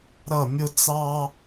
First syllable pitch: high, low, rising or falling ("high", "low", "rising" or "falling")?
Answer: falling